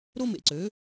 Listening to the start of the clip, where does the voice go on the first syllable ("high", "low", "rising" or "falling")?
high